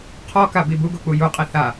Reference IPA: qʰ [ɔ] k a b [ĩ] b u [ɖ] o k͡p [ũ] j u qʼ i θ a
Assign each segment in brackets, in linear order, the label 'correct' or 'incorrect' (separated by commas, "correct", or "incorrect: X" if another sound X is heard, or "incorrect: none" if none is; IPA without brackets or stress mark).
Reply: correct, incorrect: i, incorrect: ɡ, incorrect: u